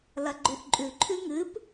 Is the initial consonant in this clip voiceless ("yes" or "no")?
no